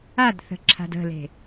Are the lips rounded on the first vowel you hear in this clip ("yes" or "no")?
no